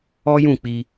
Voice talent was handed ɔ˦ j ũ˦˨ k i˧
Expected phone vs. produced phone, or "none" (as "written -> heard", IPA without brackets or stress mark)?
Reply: k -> k͡p